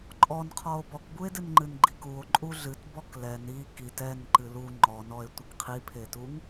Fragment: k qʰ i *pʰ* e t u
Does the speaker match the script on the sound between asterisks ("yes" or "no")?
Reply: yes